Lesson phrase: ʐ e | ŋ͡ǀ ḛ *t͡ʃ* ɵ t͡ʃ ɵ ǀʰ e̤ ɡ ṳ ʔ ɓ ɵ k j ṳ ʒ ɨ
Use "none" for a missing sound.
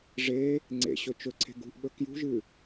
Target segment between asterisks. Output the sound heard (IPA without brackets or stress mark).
ɕ